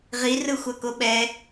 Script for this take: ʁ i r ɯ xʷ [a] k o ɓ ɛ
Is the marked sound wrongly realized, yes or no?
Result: no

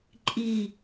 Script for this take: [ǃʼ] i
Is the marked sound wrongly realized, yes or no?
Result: no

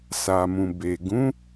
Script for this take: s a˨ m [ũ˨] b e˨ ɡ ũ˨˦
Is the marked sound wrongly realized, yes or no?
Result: no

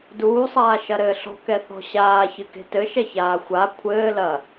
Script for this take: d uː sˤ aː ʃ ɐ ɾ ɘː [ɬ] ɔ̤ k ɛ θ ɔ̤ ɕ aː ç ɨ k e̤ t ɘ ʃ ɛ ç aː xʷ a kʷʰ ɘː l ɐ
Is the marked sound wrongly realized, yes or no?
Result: no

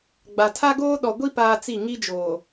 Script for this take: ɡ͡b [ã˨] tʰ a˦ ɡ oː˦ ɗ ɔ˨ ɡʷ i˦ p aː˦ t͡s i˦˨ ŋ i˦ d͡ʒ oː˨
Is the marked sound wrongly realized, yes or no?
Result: yes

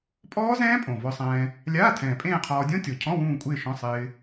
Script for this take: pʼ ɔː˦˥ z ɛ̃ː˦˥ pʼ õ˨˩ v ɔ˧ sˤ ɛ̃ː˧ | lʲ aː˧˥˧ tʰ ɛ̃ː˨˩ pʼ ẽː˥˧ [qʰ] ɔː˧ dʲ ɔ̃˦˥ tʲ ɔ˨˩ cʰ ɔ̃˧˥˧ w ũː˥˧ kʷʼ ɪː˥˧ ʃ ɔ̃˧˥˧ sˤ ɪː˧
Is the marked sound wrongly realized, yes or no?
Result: no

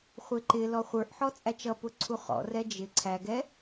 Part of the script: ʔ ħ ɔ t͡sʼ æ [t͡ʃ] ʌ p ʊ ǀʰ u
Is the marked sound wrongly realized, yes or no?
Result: no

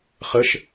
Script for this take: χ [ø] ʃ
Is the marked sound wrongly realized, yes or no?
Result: yes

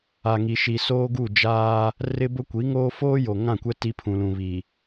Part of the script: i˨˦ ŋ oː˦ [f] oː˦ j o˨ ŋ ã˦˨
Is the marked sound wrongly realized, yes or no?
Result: no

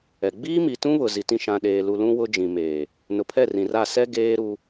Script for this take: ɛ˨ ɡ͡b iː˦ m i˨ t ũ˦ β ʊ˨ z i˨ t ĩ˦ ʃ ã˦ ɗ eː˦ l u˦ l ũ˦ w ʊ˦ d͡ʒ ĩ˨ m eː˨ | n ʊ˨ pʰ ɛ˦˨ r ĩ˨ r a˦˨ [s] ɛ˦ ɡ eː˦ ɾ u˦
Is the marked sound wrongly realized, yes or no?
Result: no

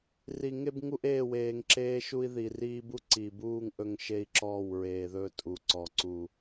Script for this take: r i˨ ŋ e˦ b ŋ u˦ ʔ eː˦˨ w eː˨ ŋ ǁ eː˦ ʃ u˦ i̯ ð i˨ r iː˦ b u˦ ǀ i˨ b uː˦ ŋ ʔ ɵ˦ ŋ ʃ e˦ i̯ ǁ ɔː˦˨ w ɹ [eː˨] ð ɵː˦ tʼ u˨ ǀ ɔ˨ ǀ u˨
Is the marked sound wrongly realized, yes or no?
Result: no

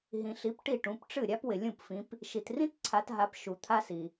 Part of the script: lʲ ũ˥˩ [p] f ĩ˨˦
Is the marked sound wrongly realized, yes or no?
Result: no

